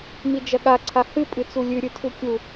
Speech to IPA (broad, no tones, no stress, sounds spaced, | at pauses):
m i d͡ʒ ɐ ɠ a ǀʰ a h ɨ pʼ ɨ t͡s u lʲ ʉ ɾʲ ɨ tʰ u kʲ u